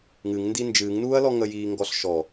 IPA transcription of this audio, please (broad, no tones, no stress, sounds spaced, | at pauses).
ŋ ɨ ŋ n d i n d͡ʒ ɨː ŋ n uː ɐ̯ l ɔ ŋ ə j iː ŋ ɡ ɔ ɬ ʃ ɔ